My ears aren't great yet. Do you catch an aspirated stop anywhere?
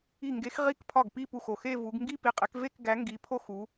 yes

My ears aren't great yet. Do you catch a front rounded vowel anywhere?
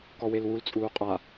no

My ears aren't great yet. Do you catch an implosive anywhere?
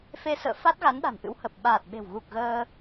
yes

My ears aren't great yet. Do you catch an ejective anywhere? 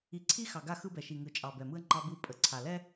yes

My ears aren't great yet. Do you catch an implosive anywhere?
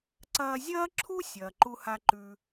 no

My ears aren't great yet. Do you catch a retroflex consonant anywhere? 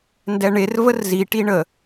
yes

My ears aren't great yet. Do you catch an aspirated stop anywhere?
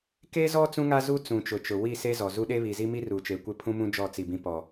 yes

